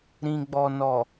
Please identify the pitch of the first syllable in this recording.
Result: low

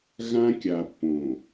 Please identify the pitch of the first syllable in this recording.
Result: high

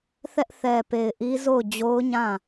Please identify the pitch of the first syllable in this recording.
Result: high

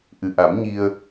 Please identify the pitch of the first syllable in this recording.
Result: low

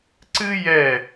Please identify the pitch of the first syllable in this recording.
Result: high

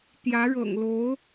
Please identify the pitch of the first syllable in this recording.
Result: rising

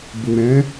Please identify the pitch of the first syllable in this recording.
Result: low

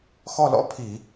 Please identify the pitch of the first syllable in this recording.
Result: falling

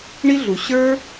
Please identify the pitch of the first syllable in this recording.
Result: high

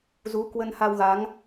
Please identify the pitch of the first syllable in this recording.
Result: rising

